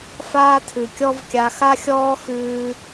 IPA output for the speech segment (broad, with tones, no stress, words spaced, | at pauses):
faː˦tʰʉ˨kʲɔ˦vkʲa˧ xa˦xʲɔː˦xʉː˧